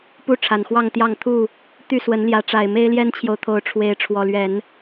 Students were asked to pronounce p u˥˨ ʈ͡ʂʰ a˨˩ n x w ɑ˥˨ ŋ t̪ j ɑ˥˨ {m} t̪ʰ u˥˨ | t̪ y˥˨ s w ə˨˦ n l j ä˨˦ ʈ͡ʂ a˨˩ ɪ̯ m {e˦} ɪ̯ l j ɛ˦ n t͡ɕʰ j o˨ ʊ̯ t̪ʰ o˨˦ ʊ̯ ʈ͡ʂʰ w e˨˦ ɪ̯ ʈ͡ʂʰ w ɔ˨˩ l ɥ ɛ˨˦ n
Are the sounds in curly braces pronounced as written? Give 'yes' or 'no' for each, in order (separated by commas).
no, yes